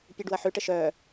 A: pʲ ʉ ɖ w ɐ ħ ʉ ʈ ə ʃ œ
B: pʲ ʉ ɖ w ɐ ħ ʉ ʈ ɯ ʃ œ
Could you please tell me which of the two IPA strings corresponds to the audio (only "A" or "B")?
A